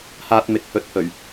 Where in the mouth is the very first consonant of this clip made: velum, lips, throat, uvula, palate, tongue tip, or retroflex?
throat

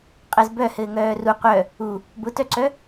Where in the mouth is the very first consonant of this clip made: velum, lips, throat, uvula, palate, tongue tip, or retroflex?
uvula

